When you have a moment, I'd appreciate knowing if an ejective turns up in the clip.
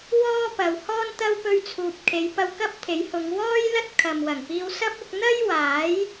no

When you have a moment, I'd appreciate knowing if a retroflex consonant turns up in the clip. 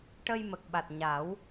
yes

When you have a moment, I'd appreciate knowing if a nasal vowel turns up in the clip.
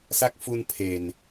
no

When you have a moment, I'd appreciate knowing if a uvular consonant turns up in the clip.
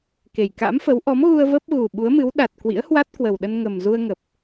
no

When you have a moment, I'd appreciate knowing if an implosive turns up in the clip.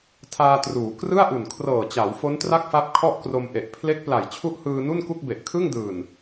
no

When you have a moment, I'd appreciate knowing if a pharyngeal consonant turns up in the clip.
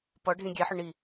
yes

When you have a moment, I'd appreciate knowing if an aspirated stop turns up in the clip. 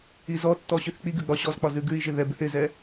no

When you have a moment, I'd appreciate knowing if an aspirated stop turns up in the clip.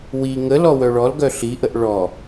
no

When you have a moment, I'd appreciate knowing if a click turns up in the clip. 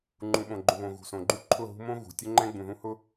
yes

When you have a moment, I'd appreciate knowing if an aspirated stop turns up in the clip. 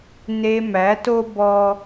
no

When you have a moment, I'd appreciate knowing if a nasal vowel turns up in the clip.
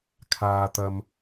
no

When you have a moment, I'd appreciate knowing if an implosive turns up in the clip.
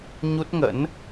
no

